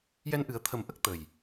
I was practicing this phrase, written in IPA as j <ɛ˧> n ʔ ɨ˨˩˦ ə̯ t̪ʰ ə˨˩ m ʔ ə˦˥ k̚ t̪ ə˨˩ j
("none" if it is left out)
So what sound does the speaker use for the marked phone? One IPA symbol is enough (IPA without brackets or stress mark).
ɛ˧